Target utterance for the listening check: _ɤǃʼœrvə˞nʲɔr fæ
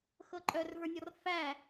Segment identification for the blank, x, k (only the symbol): x